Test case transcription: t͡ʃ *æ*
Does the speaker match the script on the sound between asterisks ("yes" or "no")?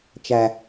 yes